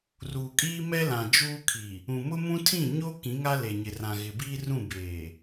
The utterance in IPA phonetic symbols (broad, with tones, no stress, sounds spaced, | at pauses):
r uː˨ kʼ iː˦ m ɛ˦ l ã˨ d͡ʒ uː˦ kʰ i˨ | ũ˨ m ʊ˦ m ũ˦ tʰ ĩ˦˨ ɲ o˦ k ĩ˨˦ ŋ a˦ l e˨ ɲ ɪ˨ r ã˨ ɣ ɪ˨ b iː˦ r ũ˦˨ b eː˨